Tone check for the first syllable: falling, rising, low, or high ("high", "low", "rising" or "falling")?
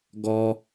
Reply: high